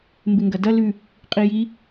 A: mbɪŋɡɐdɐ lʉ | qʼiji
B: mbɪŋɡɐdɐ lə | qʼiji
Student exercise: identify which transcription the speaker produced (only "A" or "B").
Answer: A